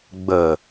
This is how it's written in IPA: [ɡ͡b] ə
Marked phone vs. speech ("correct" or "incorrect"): correct